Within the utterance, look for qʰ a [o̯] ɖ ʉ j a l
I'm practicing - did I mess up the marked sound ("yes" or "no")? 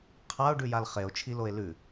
no